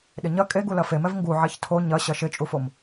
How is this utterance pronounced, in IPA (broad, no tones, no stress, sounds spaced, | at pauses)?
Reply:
ɗ ɪ ɲ ɐ kʼ e ɡ u l ɐ f e m ɛ v ŋ ɡ u ʕ ɛ ç tʰ o ɲ ɐ ɕ ɐ ʃ ɪ t͡ʃʼ u f o m